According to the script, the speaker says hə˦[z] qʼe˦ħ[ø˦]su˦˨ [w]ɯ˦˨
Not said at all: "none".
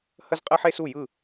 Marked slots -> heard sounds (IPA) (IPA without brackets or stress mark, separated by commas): z, e˦, j